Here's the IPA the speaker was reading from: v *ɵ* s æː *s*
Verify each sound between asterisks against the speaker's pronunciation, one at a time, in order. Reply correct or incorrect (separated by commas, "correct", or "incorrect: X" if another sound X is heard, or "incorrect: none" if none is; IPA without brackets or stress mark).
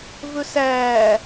correct, incorrect: none